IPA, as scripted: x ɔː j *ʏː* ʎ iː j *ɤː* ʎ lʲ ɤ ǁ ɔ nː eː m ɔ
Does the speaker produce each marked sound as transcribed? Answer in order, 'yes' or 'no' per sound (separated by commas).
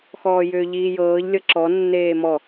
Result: yes, yes